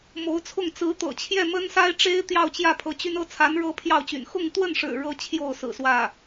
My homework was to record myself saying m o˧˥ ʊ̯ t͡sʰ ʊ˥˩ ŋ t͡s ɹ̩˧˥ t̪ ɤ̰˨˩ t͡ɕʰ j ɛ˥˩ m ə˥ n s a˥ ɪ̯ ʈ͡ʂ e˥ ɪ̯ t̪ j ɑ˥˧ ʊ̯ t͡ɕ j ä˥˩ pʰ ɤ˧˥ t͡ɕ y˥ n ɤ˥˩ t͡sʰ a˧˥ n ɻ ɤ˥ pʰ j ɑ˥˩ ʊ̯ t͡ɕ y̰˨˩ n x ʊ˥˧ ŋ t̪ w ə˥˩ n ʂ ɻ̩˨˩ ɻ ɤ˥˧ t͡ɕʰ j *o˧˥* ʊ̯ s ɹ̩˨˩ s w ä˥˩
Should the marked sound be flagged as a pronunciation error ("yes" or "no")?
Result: yes